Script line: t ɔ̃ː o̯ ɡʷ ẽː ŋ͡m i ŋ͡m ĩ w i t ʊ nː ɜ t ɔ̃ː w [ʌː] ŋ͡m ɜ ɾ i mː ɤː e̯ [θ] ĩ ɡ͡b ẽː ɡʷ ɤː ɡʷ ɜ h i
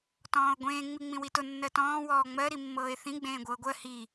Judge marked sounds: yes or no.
no, yes

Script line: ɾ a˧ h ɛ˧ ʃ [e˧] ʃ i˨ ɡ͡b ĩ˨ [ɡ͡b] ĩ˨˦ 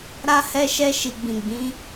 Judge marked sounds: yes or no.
no, yes

